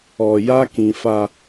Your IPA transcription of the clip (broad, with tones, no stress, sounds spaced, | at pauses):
ɔ˨ j a˦ k ĩ˨ f a˨